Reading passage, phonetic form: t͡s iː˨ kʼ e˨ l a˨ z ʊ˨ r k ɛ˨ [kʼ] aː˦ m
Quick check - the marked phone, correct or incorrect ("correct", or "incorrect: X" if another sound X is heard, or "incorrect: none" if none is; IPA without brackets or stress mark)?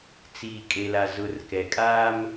correct